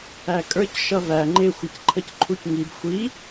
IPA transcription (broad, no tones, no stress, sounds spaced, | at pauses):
æ kʼ ə˞ c ʃ ʌ v æ ŋ͡ǃ ɪ xʷ ɪ c ǃʰ ə c ǃʰ u c ŋ i b xʷ i